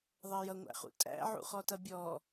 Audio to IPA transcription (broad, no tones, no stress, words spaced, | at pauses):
ðˤɜjʌŋʷæ̰χṵ tʼæ̰ ʕṵχɔtʌbʲɔː